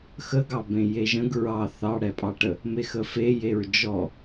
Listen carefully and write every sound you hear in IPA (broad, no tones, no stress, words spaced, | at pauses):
xəɡɑ bẽjeʒə̃ɡ ɹɑ θɑɽɛpʼɑʈə | mexəfe jeɹd͡ʒɔ